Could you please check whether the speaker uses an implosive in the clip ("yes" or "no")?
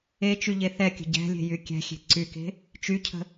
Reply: no